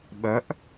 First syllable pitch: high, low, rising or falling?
rising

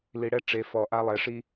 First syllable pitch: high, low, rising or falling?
low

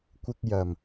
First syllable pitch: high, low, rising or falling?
high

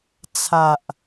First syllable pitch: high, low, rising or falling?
low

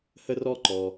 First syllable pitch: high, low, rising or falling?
high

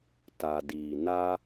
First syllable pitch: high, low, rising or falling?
low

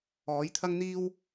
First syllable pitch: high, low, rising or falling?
rising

